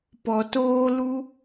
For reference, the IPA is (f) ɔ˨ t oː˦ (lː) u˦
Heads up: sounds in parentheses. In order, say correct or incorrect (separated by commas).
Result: incorrect, incorrect